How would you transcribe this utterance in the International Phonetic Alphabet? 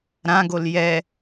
ɾãɡol jɛ

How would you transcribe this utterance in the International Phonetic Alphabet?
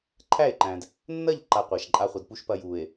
ǃʰæ˦˨e̯ǃæ̃˨d | nːɐ˦˨ʎǃa˨ qʷa˨ʃǃʼa˦ χʷɐ˨dpu˦ʃ pɐ˦ju˨e̯

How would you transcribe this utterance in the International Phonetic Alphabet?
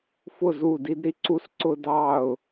fʊ˦˨zu˦˨di˦dɾi˦ ǀu˦sǀʊ˦ dɑ˦˨ʊ̯

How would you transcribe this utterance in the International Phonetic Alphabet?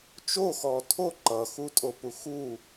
t͡ʃoxɔ tʰo ǃʌxutʼopu xu

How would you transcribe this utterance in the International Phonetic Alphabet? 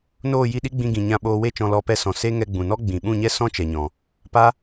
noː˦˨ji˦˨ɗi˦ɡ͡bĩ˧ ɡĩ˨ɲã˧ ɓoː˧we˦t͡ʃɔ̃˧ lɔ˧pɛ˧sɔ̃˨ se˦ ŋɛ˧ɡ͡bũ˨nɔ˦ ɡ͡bĩ˨ ɓũ˦˨ɲɛ˦ sɔ̃˦ t͡ʃɛ˨ɲɔ̃˨ | pa˦

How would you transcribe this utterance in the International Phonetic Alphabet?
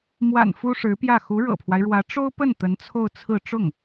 mwa̰˨˩n fu˥ʂɻ̩˧˥pjä˥˩ xu˧˥ɻɤ̰˨˩pʰwa˦ɪ̯ɻwä˧˥ ʈ͡ʂo˥ʊ̯pə˥˩n t̪ə˧˥nt͡sʰo˥˧ʊ̯ t͡sʰɹ̩˥˧ ʈ͡ʂʊ˥˩ŋ

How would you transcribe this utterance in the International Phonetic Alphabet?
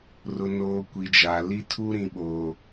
rʊ˨noː˨ kʷi˨d͡ʒa˨ li˦tʰu˦ɾĩ˨ɓoː˨

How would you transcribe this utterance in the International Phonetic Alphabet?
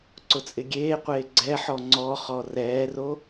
ǀʊt͡sʼɪɡʲeːqʷeː ɡ͡ǀɛħɔ ŋ͡ǀɔχɔ rɛːro

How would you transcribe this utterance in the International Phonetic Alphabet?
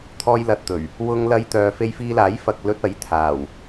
t̪ʰɔː˥jlɐ˧t̚t̪ɵ˨˩ɥ | wʊ˥ŋlɐ˥jt̪œː˧ fe˧jfiː˧laː˨˥j fɐ˨k̚lɵ˧t̚ɐ˨˥j t̪ʰaː˨˩w

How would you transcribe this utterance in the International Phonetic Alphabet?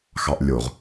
xɑʔlʲoʁ

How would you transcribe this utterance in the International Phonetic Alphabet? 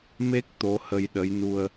me˦˥k̚ t̪o˧˥hə˧jɗə˧˥j nu˧ə̯

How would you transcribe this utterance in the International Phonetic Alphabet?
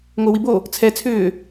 ŋʷəːwibo | t͡sʰɛ t͡sʰʏː

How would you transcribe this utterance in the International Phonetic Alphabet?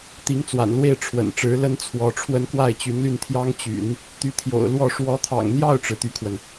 t̪i˧˥ŋt͡swa̰˨˩nlwe˥˩ɪ̯ ʈ͡ʂʰwə̰˨˩nʈ͡ʂɻ̩˧˥lə˥n t͡sʰwɔ˧˥ʈ͡ʂʰwə˥n kwa˥˩ɪ̯t͡ɕy˧˥nly˥˩nt̪ʰjɑ˥ŋ t͡ɕy̰˨˩˦n | t̪y˧˥t̪ʰjo̰˨˩ʊ̯lwɔ˥˩ ʂwɔ˧˥t̪ʰɑ̰˨˩ŋn̪jɑ˥˩ʊ̯ʈ͡ʂɻ̩˩ t̪y˥kʰwə˨n

